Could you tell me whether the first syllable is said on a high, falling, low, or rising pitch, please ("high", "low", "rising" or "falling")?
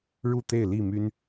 falling